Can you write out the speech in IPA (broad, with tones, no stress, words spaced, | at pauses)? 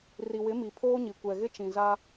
ri˨wɪ˨˦mi˨ pʰoː˦ɲi˨ kʷɛ˨ɣɪ˦t͡ʃĩ˨ za˦